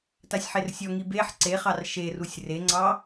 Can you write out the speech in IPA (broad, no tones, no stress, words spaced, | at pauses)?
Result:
tasʲħersʲɔŋi beħ ǀeχɑr ʃerusʲ reŋ͡ǀɑ